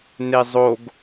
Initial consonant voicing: voiced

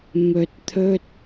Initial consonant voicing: voiced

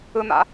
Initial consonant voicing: voiced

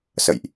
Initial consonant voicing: voiceless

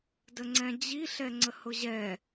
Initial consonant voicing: voiced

